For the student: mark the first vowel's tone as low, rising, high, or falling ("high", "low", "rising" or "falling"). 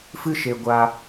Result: high